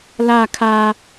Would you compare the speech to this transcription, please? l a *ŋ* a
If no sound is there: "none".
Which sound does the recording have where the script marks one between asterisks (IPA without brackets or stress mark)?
kʰ